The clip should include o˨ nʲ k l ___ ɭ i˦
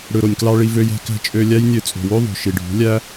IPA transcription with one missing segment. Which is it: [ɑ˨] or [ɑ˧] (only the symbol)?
ɑ˧